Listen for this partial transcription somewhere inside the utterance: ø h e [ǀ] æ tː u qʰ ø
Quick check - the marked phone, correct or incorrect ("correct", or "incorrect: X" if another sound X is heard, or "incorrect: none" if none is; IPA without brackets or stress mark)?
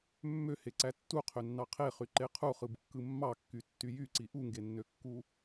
correct